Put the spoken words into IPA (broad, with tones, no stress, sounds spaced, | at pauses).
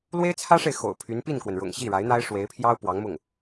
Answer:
l w e˥ ɪ̯ t͡sʰ ä˥ ʂ e˨ ɪ̯ x o̰˨˩ ʊ̯ pʰ y˧˥ n p i˥˩ n k w ə˩ n ɻ ʊ̰˨˩ ŋ ɕ i˥˩ ɻ a˧˥ ɪ̯ n̪ a˥ ɪ̯ ʂ w e˧˥ ɪ̯ pʰ j ɑ˥ ʊ̯ p w ɑ˧˥ ŋ m ʊ˥˩ ŋ